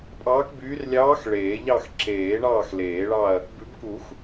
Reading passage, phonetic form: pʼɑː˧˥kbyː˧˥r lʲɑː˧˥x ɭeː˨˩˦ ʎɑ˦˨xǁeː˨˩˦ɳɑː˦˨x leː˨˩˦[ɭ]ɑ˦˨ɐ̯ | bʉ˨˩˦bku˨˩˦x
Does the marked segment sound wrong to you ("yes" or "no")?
no